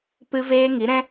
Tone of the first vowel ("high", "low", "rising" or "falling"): high